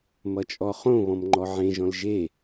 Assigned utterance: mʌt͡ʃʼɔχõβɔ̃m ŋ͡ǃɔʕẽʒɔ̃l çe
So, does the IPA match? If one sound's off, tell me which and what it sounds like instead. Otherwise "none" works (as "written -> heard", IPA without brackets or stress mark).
ç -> ʒ